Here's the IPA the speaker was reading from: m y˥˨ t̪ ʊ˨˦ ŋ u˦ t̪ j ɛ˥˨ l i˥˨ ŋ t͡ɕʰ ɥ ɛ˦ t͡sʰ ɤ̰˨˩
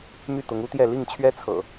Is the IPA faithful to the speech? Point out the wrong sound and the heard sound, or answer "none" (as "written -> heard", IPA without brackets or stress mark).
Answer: none